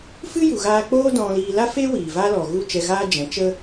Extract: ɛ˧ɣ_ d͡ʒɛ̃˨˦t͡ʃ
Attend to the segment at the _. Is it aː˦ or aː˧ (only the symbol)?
aː˦